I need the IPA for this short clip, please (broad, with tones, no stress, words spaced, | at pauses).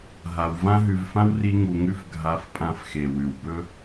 ɦa˧w vã˦ɦʉ˧vfã˦w ri˦ŋu˧ŋʉ˦f ɡʱa˧fpʼã˧f xe˨wʉ˨wbɵ˦